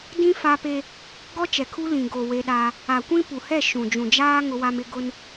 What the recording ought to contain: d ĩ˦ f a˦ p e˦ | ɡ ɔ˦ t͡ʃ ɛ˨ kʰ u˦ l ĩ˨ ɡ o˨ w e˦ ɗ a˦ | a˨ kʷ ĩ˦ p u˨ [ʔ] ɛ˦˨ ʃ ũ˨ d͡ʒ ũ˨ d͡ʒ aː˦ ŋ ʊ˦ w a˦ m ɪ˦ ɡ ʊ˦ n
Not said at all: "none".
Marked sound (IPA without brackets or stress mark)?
h